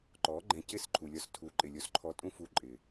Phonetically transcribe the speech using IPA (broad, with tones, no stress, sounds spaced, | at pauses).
ǃ ɔ˨˦ ɡ͡ǃ ɛ̃˧ c ɪ˦˨ s ǃʰ u˨ lʲ ɔ˧ s tʰ u˨˦ ǃʼ ɪ˨ lʲ o˧ s ǃʰ ɔ˧ tʼ ũ˦ f u˧ ǃʼ ɪ˨